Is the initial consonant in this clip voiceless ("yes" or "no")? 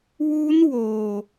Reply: no